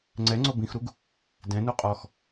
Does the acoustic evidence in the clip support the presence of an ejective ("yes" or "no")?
yes